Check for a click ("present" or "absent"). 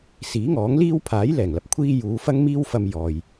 absent